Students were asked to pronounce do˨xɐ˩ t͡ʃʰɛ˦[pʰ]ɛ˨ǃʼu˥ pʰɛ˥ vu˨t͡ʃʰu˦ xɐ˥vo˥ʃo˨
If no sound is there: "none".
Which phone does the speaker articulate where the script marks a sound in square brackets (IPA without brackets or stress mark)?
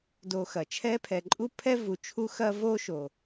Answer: pʰ